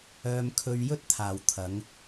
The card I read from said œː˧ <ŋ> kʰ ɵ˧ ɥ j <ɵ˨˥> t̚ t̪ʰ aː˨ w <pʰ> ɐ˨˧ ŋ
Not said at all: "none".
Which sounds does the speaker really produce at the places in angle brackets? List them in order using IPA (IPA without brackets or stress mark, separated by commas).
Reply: m, ɵ˥, t̪ʰ